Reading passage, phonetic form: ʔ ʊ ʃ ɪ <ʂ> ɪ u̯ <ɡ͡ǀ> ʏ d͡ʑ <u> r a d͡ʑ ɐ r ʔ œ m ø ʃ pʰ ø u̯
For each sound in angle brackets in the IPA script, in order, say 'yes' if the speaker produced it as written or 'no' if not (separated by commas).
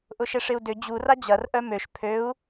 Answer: yes, no, yes